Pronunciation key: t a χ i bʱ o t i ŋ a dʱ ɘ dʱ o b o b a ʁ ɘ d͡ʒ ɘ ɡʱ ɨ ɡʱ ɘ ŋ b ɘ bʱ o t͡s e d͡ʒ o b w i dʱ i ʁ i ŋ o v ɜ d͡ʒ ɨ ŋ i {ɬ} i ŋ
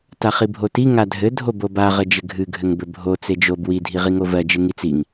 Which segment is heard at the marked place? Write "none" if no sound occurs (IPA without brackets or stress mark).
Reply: t͡s